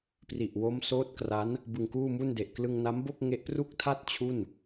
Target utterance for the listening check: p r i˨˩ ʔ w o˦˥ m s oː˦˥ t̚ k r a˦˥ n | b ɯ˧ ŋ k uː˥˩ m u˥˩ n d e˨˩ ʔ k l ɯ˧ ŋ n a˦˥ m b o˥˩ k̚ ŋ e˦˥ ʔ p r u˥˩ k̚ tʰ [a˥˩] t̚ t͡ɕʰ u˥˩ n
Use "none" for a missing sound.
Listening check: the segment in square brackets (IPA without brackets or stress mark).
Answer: a˥˩